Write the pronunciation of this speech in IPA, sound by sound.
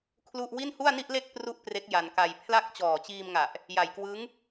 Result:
kʰ l u˥˩ ʔ w i˥˩ n h u˥˩ a̯ n i˥˩ ʔ l e˥˩ k̚ p r u˥˩ ʔ p r e˦˥ k̚ j a˧ n k a˧ j pʰ l a˦˥ k̚ t͡ɕ ɔː˨˩ t͡ɕ iː˧ m ŋ a˨˩ ʔ | j a˨˩ j k w ɯ˦˥ ŋ

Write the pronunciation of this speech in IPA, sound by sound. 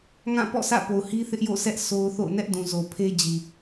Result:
ŋ ã˦˨ p ɔ̰˦˨ sʰ ä̰˦˨ p o˨ ʊ̯ h i˦ θ ɪ˦ ʔ j o̰˦˨ s ɛ˦ ʔ s o˦ ʊ̯ θ o̰˦˨ ʊ̯ n ɛ˦ ʔ d ũ˨ z o˨ pʰ e˦ d͡ʑ i˨

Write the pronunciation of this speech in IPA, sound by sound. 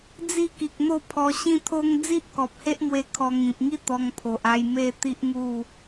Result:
d͡z i˥˧ k i˨ k̚ n̪ o˥˧ pʰ ɔ˧ ɕ ĩ˦ t̪ʰ o˦ ŋ d͡z i˦ ʔ k ɔ˨ p̚ h e˦ ʔ m w e˧ kʰ ɔ˧ ŋ ĩ˨ p̚ ŋ i˦ t̪ ɔ˧ ŋ pʰ o˨ ʔ a˧ j m e˥˧ t̪ i˦ ʔ ŋ u˥˧

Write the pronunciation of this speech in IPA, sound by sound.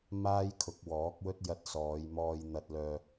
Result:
m aː˥ j kʰ ʊ˨˥ k̚ w ɔː˨˥ k̚ w ɵ˥ t̚ j ɐ˧ t̚ s ɔː˨˧ j m ɔː˧ j n̪ ɐ˧ t̚ l œː˧

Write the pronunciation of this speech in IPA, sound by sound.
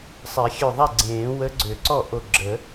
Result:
sˤ ɛ˨˩˦ xʲ ø˧˩ ðˤ ɛ˥˩ ɡ͡ǀ ẽː˨˩˦ w ə˧˥ ɡ͡ǀ ø˨˩˦ ǀ ɔ˥˩ ʔ o˧˩ ɡ͡ǁ ə˨˩˦

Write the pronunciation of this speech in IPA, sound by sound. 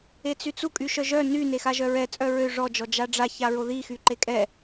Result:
e t͡s y t͡s u kʼ y ʃ œ ʒ œ n y n e x a ʒ œ ɹ ɛ t͡sʼ œ ɹ ø ʐ ɔ d͡ʒ ɔ d͡ʒ a ɖ͡ʐ a ç a ɹ o ð i x y ǃ e kʼ ɛ

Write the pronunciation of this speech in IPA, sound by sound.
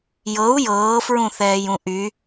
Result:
j ɤ u̯ j ɤː f ɹ ũ θ ɛː j ũ ʔ y

